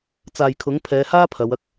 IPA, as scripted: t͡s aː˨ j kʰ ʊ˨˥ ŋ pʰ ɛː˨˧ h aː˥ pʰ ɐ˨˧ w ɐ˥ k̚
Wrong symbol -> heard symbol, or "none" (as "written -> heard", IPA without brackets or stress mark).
none